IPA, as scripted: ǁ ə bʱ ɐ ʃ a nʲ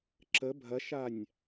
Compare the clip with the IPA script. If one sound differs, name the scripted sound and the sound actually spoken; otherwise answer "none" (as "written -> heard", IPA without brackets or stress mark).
none